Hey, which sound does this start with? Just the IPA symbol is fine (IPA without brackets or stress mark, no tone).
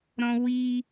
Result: ɾ